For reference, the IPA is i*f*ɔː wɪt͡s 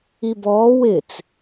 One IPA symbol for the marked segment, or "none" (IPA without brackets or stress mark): b